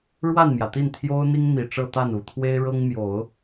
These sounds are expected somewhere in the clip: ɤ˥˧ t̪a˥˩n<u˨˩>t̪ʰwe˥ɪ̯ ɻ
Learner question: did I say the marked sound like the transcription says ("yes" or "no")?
yes